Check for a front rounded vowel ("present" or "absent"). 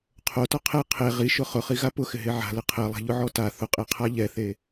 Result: absent